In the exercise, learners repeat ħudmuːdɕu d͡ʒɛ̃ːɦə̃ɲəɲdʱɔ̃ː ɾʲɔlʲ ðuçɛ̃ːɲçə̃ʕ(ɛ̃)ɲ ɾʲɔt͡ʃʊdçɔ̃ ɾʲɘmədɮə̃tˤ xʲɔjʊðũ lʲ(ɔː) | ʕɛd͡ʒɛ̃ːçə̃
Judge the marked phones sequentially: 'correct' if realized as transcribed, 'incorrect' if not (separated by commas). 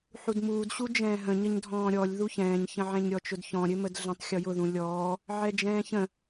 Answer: correct, correct